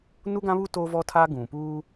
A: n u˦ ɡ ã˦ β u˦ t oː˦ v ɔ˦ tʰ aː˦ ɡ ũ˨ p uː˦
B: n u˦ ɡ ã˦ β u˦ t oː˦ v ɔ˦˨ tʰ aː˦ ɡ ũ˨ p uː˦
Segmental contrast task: A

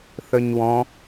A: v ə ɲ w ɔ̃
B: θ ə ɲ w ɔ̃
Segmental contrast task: B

